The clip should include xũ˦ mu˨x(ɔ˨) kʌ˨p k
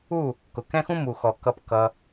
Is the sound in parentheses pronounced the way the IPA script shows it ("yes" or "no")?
yes